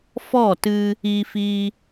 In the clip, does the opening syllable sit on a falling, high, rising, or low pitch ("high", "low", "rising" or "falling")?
falling